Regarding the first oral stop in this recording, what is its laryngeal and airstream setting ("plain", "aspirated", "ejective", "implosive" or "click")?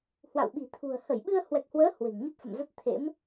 implosive